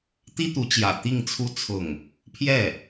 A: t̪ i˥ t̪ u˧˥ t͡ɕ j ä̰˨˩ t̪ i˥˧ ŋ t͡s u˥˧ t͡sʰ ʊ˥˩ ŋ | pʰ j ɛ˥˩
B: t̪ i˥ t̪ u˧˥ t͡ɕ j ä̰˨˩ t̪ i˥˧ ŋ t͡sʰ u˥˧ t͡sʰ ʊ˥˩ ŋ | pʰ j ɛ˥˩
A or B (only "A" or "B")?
B